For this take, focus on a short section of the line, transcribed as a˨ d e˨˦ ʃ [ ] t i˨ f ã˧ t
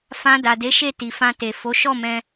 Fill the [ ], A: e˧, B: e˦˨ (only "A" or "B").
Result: B